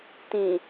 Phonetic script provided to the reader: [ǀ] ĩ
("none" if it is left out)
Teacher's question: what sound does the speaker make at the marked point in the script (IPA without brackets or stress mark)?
t